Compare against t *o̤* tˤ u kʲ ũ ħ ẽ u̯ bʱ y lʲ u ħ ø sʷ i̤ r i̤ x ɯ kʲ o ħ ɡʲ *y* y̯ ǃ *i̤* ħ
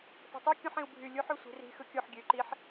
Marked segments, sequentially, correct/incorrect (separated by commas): correct, incorrect, incorrect